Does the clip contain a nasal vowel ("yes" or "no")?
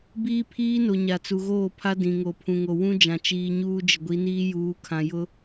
yes